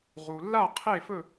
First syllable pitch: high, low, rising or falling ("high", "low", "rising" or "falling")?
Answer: low